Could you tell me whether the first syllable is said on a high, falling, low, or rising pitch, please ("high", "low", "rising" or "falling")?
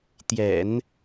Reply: low